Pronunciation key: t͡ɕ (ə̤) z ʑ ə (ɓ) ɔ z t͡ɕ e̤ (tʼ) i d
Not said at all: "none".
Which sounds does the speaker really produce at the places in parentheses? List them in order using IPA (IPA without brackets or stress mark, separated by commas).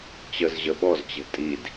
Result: ə, ɓ, tʼ